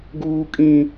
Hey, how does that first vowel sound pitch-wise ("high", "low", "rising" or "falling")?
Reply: high